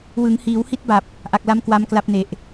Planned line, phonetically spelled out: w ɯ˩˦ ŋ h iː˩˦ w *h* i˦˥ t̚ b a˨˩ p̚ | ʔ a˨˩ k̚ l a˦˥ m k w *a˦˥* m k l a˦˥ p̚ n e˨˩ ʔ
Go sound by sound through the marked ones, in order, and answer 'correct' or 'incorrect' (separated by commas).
correct, correct